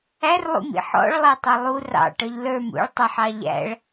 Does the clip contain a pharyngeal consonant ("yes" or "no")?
yes